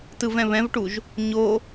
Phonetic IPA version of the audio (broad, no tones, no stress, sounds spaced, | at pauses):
t ɯ v ɛ̃ β ɛ̃ v ʈ u ʒ | ɲ o